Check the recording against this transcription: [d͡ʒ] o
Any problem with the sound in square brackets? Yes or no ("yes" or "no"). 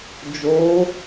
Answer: no